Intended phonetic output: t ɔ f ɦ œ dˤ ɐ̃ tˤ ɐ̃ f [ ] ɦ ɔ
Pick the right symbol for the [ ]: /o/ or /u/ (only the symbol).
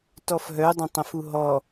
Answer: u